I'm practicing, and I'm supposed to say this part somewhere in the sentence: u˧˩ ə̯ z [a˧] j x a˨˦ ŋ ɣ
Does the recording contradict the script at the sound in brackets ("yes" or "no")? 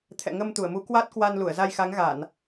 no